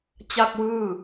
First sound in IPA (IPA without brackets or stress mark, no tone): t͡ɕ